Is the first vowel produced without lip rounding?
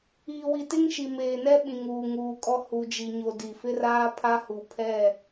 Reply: yes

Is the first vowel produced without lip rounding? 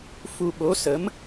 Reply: no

